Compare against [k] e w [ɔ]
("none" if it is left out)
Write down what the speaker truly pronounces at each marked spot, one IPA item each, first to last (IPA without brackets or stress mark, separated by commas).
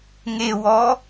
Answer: ŋ, ɔ